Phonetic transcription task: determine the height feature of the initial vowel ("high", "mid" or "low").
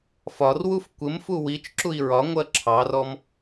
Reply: low